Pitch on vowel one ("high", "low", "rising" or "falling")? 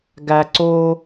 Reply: high